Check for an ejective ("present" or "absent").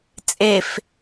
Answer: present